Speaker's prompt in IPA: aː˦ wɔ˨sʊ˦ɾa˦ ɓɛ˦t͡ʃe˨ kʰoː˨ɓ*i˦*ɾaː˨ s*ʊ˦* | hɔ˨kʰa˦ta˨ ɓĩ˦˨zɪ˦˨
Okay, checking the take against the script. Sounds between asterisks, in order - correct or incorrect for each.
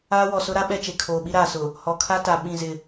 correct, incorrect

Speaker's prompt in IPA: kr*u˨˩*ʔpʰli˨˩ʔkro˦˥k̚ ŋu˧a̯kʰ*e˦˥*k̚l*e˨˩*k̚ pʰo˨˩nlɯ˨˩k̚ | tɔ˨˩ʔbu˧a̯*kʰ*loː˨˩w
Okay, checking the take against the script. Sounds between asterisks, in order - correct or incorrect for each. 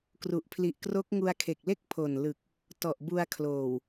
correct, incorrect, incorrect, correct

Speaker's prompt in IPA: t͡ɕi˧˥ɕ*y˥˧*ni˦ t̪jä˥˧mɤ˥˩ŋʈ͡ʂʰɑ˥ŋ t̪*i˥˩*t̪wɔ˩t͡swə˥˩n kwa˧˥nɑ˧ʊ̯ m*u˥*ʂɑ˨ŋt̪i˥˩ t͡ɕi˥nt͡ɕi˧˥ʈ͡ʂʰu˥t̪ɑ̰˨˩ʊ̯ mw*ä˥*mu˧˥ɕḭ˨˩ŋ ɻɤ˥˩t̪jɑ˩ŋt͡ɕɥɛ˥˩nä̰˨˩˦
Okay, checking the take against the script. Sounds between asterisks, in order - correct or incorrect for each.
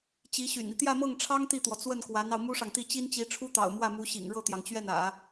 incorrect, correct, correct, incorrect

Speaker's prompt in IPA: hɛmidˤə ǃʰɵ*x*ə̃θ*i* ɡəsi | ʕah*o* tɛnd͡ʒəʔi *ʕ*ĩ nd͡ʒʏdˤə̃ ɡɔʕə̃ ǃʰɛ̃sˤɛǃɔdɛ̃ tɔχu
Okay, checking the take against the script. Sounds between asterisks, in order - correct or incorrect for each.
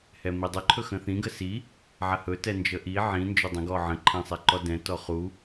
correct, incorrect, incorrect, correct

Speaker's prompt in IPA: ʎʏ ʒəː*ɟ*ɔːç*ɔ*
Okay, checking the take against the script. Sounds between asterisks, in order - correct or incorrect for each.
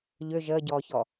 correct, correct

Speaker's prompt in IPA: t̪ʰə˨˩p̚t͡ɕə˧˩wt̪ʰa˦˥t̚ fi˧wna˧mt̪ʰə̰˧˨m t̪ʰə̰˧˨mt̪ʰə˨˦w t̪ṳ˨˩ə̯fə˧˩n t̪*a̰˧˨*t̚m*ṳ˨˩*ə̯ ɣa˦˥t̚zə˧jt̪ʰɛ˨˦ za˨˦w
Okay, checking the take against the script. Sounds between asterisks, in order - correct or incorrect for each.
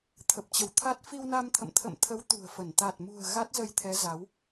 incorrect, correct

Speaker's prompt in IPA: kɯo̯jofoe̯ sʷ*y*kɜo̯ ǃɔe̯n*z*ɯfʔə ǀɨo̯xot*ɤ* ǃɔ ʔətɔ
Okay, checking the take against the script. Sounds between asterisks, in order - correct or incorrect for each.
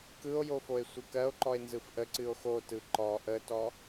incorrect, correct, incorrect

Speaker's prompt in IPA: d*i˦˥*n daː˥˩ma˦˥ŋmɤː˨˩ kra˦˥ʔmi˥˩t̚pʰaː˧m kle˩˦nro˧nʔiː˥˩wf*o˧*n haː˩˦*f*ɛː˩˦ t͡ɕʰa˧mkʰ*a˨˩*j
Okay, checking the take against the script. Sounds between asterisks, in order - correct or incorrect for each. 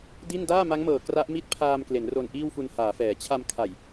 incorrect, incorrect, correct, correct

